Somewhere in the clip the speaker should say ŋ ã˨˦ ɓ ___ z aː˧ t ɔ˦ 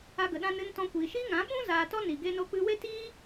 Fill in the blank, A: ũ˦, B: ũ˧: A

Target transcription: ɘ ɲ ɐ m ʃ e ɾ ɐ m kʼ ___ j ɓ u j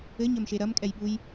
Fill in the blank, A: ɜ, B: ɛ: B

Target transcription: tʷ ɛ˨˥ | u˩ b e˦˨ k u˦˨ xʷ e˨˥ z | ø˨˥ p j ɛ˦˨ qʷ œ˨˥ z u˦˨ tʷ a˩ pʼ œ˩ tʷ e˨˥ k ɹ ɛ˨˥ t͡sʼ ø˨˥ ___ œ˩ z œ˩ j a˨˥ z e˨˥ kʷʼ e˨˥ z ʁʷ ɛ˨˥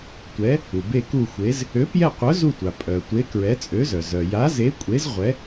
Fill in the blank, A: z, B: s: A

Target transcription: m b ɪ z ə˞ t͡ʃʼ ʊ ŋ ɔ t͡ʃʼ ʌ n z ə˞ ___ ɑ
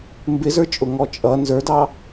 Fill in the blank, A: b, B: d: B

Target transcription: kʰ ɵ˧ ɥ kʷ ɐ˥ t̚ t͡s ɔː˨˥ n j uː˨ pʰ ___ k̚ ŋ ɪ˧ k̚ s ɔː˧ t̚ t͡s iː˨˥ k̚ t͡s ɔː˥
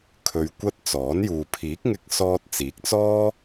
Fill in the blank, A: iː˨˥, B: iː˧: A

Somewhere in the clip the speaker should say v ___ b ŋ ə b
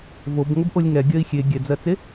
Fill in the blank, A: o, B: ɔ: A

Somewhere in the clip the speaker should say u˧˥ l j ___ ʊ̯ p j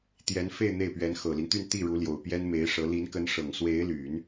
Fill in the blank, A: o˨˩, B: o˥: A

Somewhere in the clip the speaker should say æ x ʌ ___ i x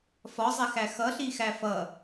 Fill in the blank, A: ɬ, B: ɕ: A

